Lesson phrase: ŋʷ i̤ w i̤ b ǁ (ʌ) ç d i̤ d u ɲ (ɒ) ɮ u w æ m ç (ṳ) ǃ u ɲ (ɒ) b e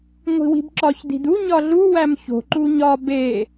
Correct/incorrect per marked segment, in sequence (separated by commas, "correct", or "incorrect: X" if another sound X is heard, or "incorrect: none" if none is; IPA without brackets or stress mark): incorrect: ɒ, correct, incorrect: o̤, correct